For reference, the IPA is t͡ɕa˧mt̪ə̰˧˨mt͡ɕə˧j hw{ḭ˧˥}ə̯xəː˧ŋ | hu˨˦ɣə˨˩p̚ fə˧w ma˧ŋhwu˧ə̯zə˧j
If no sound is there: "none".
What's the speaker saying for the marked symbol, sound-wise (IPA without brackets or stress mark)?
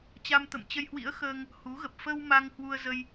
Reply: ḭ˧˥